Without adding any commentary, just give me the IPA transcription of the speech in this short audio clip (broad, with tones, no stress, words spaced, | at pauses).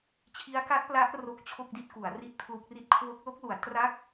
t͡ɕʰi˦˥a̯ka˦˥t̚pla˦˥ʔ ro˦˥k̚t͡ɕʰo˥˩k̚di˥˩t̚ku˩˦a̯ ri˥˩t̚pʰlu˦˥k̚ri˥˩t̚ kʰwo˦˥k̚lo˦˥k̚lu˩˦a̯ tra˥˩k̚